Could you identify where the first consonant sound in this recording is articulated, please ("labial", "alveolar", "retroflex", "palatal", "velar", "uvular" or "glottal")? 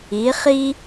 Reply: uvular